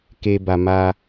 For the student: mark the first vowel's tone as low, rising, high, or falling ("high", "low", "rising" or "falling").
high